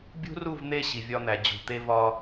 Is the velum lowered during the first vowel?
no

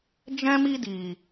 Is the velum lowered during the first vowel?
yes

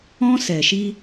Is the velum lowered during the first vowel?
yes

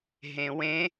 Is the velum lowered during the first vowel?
yes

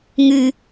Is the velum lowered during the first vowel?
no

